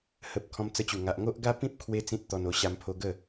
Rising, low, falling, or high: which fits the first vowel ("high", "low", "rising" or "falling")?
low